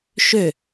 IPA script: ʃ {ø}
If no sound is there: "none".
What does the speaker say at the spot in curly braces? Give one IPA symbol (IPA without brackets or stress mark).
ø